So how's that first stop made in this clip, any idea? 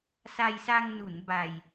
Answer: plain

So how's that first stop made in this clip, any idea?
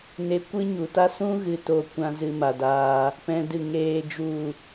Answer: plain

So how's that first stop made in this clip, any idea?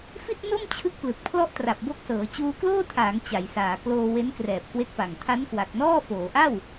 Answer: plain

